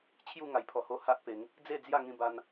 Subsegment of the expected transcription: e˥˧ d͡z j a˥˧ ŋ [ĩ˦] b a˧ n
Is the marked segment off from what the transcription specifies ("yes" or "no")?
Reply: yes